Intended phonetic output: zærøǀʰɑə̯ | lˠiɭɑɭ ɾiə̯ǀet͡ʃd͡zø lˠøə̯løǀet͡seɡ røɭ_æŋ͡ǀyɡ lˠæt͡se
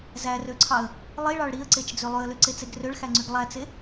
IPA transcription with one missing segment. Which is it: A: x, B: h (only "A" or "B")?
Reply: A